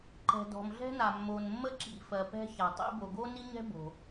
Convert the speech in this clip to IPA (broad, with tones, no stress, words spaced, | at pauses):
ǃɛ̤˩dɔ̤˩mɮɛ̤˥na˩ mːo˩nmːə˥ǁḭ˩fɜ˩ pɛ̤˥ça˩tˤḭ˥ bo˩ɡo˥ni˥ɲɛ̤˥ bo̤˩